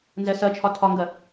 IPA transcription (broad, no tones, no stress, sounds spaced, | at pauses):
n z ɛ s ɜ t͡ʃʰ ɒ tʰ ɒ ŋ ɡ ɜ